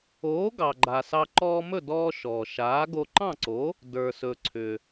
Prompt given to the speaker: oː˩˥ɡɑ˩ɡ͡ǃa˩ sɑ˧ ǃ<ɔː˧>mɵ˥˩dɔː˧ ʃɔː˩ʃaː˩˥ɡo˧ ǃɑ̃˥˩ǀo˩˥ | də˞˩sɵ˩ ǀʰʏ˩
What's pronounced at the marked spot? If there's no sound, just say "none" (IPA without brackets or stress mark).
ɔː˧